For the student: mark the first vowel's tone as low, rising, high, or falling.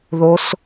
rising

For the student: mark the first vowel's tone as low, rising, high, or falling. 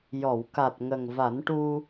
low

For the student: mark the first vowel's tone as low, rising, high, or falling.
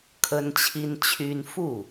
high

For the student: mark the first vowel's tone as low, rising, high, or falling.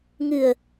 low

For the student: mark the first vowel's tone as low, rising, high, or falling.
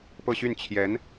falling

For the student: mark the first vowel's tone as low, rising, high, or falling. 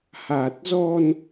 low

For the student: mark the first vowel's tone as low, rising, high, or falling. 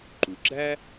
low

